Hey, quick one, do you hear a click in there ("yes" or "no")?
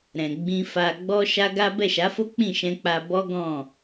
no